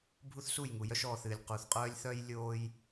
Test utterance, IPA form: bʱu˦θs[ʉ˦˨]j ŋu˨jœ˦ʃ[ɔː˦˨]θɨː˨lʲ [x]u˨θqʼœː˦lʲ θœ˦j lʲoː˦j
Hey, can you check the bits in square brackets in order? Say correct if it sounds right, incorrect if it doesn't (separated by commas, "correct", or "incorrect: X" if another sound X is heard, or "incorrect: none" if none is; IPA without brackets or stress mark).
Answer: incorrect: u˦˨, correct, incorrect: q